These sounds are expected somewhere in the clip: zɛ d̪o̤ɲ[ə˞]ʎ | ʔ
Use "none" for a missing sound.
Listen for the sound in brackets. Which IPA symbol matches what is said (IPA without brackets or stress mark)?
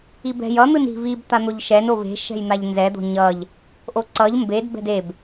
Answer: ʌ